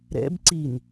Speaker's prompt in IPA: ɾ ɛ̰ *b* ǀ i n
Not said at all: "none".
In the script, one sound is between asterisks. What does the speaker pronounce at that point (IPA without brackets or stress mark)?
b